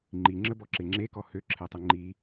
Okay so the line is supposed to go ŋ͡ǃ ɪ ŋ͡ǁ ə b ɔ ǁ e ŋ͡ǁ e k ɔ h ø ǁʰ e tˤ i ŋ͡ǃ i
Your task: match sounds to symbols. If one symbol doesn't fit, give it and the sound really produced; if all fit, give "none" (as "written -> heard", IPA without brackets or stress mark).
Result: ɪ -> i